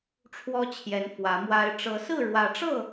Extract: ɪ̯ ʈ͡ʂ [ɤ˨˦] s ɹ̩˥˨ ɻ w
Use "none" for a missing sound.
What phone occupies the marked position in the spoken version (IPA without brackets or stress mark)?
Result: ɤ˨˦